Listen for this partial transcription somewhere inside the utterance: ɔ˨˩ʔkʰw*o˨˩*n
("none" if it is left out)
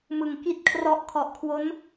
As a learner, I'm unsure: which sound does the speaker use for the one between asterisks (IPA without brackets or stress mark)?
o˦˥